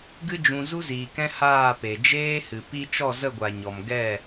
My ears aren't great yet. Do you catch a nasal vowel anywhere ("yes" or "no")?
yes